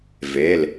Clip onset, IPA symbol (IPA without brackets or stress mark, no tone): v